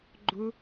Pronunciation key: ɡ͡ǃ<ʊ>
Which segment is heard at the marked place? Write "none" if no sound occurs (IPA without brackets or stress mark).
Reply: ʊ